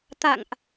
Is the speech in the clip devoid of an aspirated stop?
yes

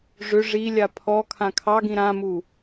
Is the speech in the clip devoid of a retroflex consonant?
no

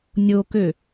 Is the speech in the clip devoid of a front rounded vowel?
no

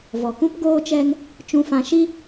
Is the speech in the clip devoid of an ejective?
yes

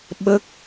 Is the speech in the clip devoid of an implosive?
no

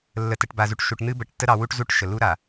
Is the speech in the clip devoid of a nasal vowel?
yes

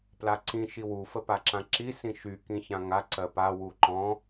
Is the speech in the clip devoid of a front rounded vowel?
no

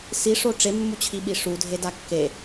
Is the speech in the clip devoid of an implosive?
no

